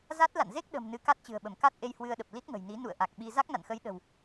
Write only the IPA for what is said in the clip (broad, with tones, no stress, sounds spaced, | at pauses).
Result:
z a˦˥ t̚ l a̰˧˨ n z e˦˥ k̚ ɗ ə̤˨˩ m n ɨ˨˦ k a˦˥ t̚ t͡ɕ ɨ̤˨˩ ə̯ ɓ ə˧˩ m k a˦˥ t̚ ʔ e˧ j h w ɨ˧ ə̯ ɗ ə˨˩ p̚ l i˦˥ t̚ ŋ ə̤˨˩ j n i˨˦ n ṵ˧˨ ə̯ ʔ a˨˩ k̚ ɓ i˧ z a˦˥ k̚ n a̰˧˨ n x ə˨˦ j ɗ ə̤˨˩ w